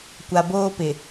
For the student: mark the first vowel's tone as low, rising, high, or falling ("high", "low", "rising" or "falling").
low